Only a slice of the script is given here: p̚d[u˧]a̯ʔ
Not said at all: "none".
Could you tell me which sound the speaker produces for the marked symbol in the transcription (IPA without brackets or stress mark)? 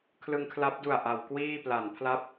u˨˩